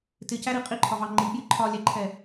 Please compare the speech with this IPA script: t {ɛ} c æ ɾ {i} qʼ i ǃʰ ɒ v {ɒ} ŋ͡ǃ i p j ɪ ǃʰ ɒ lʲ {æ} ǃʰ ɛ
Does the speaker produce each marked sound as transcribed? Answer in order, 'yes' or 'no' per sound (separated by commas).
no, yes, no, yes